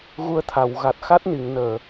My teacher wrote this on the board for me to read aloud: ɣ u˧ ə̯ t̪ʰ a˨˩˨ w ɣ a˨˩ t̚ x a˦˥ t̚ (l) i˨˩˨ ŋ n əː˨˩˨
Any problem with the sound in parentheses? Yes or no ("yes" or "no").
yes